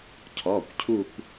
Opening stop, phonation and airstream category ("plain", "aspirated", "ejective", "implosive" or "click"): aspirated